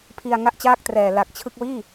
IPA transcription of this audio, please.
pʰ i˧ a̯ ŋ a˥˩ ʔ t͡ɕ aː˥˩ k̚ t r ɛː˨˩ l a˨˩ k̚ t͡ɕʰ ɯ˥˩ k̚ w iː˥˩

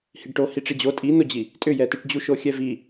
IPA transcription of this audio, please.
h i ɖ ʈ o h i ʈ͡ʂ i d͡ʑ o tʼ i n o d͡ʑ i | tʼ ʏ j ɛ t i ʈ d͡ʑ u ʃ o xʲ ɛ v i

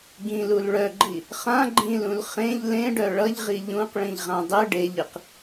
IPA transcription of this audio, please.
ɡ ĩ l u l ɭ œ ɡ͡ǃ i | χ ã ɡ͡ǃ ĩ l ũ l χ ẽ ʎ l ẽ ɖ œ ɭ ʌ ʎ ʁ i ʎ ũ q ɭ ĩ ʎ ʁ ã dˤ ɨ ɖ e ʎ ɨ q

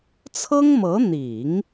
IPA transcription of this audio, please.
t͡sʰ ɤ˥ ŋ m ɤ˧˥ n̪ i˨˩˦ ŋ

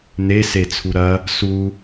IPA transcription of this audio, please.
n̪ e s e t͡sʰ u ɾ ɐ | s u

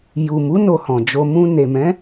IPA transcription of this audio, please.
j u˨ m u˨˦ n o˧ h ɔ̃˨ d͡ʒ o˧ m ũ˧ n e˨ m ɛ̃˨˦

